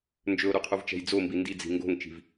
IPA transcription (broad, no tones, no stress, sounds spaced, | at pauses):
n d͡ʒ ɵ o̯ ɾ u qʰ u v t͡ʃ ɛ̤ j d͡z o m b i n d i d͡z i̤ ŋ ɡ o̤ ŋ t͡ʃ i̤ v